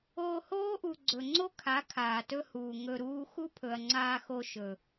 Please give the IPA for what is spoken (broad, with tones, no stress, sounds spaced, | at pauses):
oː˧ h oː˦ ʔ u˨ ɡ͡ǀ ɵ˨ ŋ͡ǀ o˦ kʰ a˨˦ kʰ aː˨ t ɵ˦ h uː˨ ŋ ɵ˧ ɾ uː˦ x u˦ pʰ ɵ˨ ɐ̯ ŋ͡ǀ aː˧ x o˧ ʃ ɵ˨